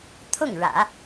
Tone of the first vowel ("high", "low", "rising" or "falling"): falling